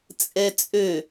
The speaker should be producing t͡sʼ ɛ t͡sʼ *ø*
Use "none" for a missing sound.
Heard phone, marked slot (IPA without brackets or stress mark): ø